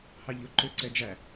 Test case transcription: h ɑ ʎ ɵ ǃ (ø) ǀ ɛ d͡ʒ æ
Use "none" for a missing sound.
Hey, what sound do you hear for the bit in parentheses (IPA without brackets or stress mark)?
ø